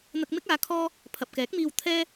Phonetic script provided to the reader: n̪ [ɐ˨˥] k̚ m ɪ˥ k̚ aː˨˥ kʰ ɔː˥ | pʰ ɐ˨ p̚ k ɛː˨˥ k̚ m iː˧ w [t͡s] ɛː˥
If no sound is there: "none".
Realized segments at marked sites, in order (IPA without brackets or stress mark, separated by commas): ɐ˧, t̪ʰ